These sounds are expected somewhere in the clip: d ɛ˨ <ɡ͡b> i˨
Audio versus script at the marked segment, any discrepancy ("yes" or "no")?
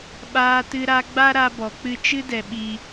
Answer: yes